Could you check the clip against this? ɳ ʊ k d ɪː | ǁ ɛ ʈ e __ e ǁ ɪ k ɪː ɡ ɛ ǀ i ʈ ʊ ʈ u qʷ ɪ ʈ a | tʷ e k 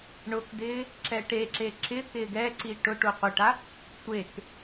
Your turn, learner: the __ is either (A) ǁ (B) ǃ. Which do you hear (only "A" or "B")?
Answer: A